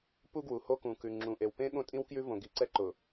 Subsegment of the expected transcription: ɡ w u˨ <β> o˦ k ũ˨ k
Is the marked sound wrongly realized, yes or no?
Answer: yes